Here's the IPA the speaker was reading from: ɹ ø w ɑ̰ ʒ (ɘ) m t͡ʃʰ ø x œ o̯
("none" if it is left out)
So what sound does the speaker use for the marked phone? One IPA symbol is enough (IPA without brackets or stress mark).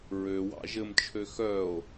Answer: ɘ